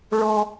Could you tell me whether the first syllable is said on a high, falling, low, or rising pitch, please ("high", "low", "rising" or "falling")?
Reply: high